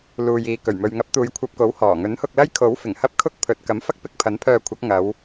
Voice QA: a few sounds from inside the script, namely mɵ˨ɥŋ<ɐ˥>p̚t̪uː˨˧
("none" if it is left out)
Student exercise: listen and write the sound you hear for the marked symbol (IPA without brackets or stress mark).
ɐ˨˥